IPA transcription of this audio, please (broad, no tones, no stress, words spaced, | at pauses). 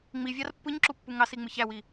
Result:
ŋ͡mivʲɑr pːɯɲǁupːu ŋɑsiŋ͡mɯç æwi